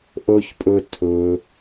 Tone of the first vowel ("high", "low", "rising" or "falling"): high